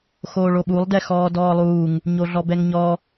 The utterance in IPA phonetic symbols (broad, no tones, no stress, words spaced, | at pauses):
xoːɭoɓulˠ dɛxɔːdɔːlˠuːŋ | ɲoɮɔbɛŋɲɔ